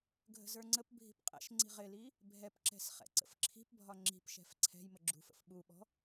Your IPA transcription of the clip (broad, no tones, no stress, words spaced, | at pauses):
ɡʱə̤zə˞ŋ͡ǀəp bʱi̤pqʼɛ̰ʃ ŋ͡ǀi̤ʁɪli | bʱɛpǁɛ̤sχɛ̰ ǀə̰fǁʰi̤pbʱɒ ŋ͡ǁi̤pʃɛ̤f ǀʰɛ̤j məɡ͡ǁṳfə̰f ɓuɓɔ̤